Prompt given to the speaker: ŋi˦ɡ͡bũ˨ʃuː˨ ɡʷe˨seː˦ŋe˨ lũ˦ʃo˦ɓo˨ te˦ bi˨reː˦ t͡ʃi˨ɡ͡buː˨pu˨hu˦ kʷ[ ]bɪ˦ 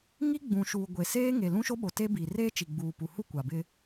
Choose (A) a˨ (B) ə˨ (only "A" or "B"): A